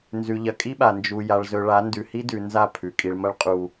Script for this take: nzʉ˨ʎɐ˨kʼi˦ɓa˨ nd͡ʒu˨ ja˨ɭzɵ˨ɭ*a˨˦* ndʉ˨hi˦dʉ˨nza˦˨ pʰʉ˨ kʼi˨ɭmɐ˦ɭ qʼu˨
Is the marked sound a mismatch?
no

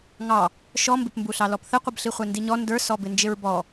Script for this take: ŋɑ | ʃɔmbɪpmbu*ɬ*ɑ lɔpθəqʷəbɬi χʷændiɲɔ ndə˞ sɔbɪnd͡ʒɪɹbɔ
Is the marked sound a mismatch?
no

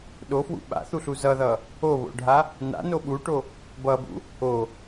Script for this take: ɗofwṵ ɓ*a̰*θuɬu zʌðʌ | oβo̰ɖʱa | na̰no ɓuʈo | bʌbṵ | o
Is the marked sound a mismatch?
no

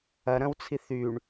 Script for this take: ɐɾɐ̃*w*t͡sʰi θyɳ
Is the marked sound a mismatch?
no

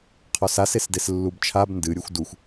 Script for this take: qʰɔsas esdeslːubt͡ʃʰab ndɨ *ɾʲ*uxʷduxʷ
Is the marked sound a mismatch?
no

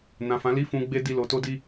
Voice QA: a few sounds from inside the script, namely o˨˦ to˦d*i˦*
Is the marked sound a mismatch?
yes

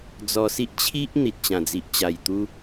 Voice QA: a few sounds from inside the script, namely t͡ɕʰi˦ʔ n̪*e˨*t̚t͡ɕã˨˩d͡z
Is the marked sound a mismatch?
yes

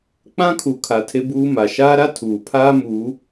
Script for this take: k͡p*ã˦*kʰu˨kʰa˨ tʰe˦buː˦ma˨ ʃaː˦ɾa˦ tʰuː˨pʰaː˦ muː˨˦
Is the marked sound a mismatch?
no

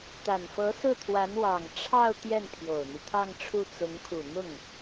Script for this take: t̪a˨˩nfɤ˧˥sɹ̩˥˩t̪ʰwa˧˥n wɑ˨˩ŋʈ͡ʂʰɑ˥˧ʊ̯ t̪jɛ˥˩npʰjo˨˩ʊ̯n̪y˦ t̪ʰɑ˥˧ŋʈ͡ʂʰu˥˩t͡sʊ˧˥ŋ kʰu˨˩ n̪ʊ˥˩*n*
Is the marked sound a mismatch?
yes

